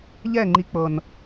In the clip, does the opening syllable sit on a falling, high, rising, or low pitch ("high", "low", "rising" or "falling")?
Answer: falling